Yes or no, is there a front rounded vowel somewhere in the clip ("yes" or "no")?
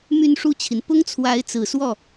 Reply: yes